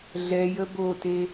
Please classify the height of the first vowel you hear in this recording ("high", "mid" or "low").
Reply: mid